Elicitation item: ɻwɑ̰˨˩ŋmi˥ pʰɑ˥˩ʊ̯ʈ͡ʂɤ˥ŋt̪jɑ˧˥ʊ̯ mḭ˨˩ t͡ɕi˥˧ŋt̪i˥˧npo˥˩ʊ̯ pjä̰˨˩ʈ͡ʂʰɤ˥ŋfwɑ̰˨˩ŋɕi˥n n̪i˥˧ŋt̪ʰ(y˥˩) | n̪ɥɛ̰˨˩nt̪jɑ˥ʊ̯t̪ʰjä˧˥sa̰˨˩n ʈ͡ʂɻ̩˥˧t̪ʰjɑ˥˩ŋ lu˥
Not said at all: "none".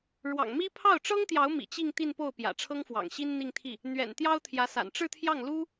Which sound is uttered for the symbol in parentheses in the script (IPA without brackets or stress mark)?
i˥˩